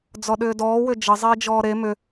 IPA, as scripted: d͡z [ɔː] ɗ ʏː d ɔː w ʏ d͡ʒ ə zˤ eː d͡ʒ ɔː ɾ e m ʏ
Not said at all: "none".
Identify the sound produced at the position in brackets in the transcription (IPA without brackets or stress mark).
ɔ